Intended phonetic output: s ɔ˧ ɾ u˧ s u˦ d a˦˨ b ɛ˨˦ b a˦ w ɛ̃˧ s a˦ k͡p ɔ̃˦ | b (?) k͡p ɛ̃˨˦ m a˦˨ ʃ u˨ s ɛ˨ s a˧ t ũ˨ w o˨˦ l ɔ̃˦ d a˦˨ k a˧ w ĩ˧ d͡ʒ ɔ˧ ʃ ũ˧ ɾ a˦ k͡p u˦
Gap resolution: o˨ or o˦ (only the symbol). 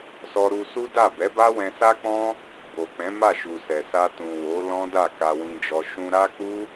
o˨